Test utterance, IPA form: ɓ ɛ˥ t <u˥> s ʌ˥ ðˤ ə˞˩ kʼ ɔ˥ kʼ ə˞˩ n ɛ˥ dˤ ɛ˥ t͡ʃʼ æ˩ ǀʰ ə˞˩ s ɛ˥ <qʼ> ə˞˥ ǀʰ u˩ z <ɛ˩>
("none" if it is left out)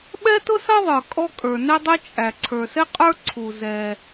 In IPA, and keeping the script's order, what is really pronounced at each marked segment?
ʊ˥, qʼ, ɛ˩

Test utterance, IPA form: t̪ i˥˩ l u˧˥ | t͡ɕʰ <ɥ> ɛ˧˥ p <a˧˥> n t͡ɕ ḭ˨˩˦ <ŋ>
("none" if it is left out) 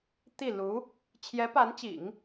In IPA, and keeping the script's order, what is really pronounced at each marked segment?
j, a˧˥, ŋ

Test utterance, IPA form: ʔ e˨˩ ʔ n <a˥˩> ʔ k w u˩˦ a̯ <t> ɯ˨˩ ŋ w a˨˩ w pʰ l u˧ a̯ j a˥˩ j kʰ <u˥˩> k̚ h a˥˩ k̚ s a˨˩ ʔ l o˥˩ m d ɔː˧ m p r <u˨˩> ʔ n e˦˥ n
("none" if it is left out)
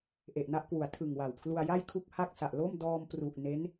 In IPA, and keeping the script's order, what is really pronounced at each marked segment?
a˥˩, tʰ, u˥˩, u˨˩

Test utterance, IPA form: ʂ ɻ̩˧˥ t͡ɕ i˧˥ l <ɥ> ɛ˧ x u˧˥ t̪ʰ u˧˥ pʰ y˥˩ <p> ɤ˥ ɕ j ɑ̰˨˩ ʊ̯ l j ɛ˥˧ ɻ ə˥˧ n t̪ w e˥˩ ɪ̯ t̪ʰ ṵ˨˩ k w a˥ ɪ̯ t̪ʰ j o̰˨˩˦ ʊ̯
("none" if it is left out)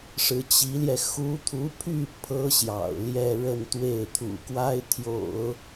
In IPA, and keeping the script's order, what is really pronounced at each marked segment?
j, pʰ

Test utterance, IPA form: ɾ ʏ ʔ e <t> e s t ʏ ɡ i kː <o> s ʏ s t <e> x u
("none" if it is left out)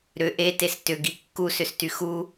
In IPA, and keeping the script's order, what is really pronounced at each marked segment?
t, u, y

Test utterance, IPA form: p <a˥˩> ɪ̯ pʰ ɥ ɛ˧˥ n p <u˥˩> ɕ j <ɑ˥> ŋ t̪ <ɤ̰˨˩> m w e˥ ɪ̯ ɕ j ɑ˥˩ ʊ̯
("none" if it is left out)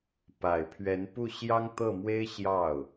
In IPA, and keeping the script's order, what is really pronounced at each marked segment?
a˨˩, u˥˩, ɑ˥, ɤ˥˩

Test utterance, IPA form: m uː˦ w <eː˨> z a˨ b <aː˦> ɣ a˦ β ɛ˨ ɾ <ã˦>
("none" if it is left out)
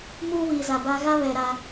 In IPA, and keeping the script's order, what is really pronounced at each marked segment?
iː˨, a˦, a˦

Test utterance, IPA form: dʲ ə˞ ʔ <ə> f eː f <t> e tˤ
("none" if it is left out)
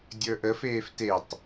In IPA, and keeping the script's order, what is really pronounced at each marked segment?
ə, t

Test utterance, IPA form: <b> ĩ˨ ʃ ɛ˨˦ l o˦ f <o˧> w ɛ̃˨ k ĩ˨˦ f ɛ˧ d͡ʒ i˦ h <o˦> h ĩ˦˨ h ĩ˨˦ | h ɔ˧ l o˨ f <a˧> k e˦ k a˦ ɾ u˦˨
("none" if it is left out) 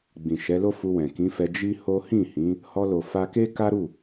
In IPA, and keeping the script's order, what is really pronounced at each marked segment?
ɡ͡b, u˧, o˦, a˧

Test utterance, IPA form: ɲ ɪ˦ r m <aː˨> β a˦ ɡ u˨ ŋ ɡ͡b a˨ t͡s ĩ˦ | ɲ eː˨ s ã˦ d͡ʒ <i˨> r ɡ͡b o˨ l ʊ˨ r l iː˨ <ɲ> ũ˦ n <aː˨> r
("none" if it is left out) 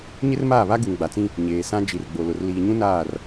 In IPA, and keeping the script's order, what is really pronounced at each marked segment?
aː˦˨, i˨, ɲ, aː˦˨

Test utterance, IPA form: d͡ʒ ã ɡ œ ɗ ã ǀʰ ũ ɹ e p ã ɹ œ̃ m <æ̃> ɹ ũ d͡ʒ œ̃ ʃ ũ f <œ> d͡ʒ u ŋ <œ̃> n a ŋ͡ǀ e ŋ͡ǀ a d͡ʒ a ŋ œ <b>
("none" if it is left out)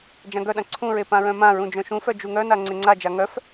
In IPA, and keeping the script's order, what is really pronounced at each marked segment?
ã, œ, œ, f

